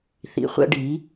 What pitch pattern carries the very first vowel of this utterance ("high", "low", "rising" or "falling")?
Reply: low